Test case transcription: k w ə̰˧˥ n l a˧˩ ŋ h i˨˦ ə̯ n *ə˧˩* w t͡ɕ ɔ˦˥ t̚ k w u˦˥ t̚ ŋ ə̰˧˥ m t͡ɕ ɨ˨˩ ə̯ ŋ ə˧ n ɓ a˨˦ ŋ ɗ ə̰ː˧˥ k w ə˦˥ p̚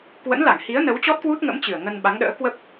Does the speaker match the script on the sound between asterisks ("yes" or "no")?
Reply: no